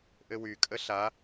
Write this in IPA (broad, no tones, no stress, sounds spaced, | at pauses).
ʔ ɘ w y kʼ ə ɬ a